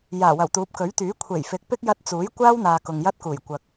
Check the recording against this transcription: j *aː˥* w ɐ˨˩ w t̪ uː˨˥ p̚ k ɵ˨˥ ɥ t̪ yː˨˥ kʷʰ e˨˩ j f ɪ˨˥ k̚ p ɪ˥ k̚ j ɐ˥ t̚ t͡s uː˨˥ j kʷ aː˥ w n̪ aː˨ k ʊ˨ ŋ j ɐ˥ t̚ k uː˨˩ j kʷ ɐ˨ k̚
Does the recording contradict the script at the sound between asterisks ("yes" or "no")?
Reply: yes